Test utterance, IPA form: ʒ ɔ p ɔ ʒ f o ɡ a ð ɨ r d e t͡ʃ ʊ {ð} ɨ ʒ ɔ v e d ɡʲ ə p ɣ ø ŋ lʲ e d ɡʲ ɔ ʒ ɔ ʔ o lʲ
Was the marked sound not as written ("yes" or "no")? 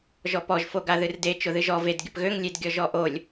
no